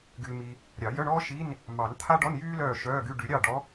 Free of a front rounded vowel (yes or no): no